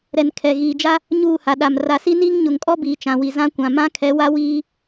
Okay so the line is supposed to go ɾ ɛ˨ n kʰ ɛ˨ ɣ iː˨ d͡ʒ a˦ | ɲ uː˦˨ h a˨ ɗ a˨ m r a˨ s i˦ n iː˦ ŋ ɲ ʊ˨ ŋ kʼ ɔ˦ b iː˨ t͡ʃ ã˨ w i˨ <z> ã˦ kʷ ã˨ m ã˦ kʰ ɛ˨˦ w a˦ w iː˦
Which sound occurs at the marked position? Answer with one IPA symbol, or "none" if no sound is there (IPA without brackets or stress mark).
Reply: z